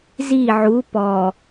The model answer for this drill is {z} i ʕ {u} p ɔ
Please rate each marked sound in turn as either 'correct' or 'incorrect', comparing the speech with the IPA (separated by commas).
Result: correct, correct